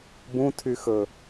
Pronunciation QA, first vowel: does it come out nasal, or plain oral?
nasal